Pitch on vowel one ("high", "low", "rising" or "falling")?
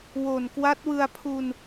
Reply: low